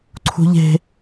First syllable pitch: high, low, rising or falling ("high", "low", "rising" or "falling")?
high